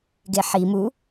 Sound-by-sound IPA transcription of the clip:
ɡ e ħ i m u

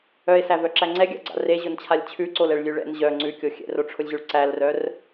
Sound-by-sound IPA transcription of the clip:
œ e̯ s æ v œ ǁ æ ŋ͡ǀ ɛ ɡʲ a̰ ɡ͡ǀ a̰ r e ʑ ʊ n t͡ɕʰ a lʲ t͡ɕʰ ʉ ǀ o l ɛ ɭ lʲ ʉ ɭ ɛ̰ n ʑ œ ŋ͡ǀ ʉ kʲ o xʲ ɛ̰ r o ʈ͡ʂʰ ʊ lʲ ʑ ʉ ɭ ǀ æ l r œ r

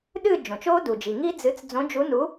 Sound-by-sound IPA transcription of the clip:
ɗ ɨː˥˧ d͡ʒ õ˩ t͡ʃ oː˦˥ d u˩ d͡ʒ i˩ ŋ i˦˥ d͡z ɨ˨˥ t͡s d͡z õ˨˥ d͡ʒ u˨˥ n u˨˥

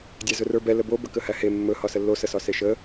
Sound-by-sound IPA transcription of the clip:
dʲ æ z ɵ r ə˞ b ɛ l ə b o b ə k ə h æ h e mː ɵ h ɒ s ə lː o s ə s ɒ s e ʃ ə

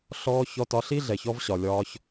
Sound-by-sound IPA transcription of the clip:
ɬ ɔː˧ ç ɔ˧ t ɒ˧ ɬ i˥ ɮ ɛ˩ ç ɔ˧ v ɕ ɒ˩ lʲ ɒː˧ ç

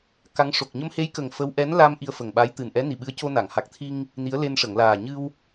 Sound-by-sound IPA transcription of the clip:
k a˧˥ ŋ ʂ o˨˩ k̚ ɲ ə˧ m h e˧˥ j k ə˨˩ ŋ f ə˧˥ w ʔ ɛ˧˥ n l a˧ m ʔ i˧ ə̯ f ə˨˩ ŋ ɓ a˧˥ j t̪ ɨ˨˩ n ʔ ɛ˧˥ n i˨˩ ɓ ɨ˧˥ ə̯ c o˧ n a˨˩˨ ŋ h a˨˩ k̚ t̪ʰ i˧ ŋ | n i˧˥ ə̯ l e˧ n ʂ ə˨˩˨ ŋ l aː˨˩ ɲ ɨ˧ w

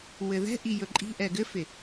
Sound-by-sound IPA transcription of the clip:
w ɘ ð ɛ̤ ʔ i j ɵ ǃʼ i̤ ʔ ɛ ɡ ɘ f ɪ

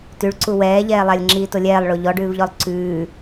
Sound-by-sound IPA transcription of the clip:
t ʉ ɭ ǀ u w ɛː ʎ ɛː lˠ a lʲ ŋ͡ǁ iː t o lʲ ɛː lˠ ɭ o ʎ ɔ ɖ ʉː v ʎ ɔ lˠ ǀ ʉː

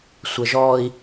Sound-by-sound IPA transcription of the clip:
sʷ ə ʒ ɔ i̯

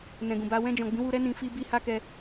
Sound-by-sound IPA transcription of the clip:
n ɛ̃˨ ɡ ũ˨ b a˧ w ɛ̃˧ d͡ʒ ɔ̃˨ ɡ͡b ĩ˨˦ w u˧ ɾ ɛ˦ n ĩ˧ f i˦ b i˦ h a˦ k ɛ˧

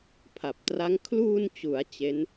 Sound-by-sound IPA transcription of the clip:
pʰ a˨˩ p̚ t r a˦˥ ŋ kʰ l uː˧ n t͡ɕ u˩˦ a̯ t͡ɕ e˦˥ n

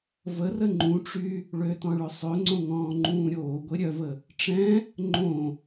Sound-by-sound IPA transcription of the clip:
v ə r ə ŋ͡ǃ ũ ʈ͡ʂ y | ɭ ø t ɔ̃ ɭ ø sˤ ø ŋ͡ǀ õ ŋ ɔ̃ː ŋ͡ǃ ũː ɾʲ oː ɡʷ e ɾʲ œ v ə | ʈ͡ʂ ɛ̃ | ŋ͡ǃ õ

